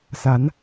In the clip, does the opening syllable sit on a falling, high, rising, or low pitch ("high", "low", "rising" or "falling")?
rising